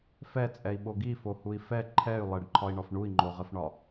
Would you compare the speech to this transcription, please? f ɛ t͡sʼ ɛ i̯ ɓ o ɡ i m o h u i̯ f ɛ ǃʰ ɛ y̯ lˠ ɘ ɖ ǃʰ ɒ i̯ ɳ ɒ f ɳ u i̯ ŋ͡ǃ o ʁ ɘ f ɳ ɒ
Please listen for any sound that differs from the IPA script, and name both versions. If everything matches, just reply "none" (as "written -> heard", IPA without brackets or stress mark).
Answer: m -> f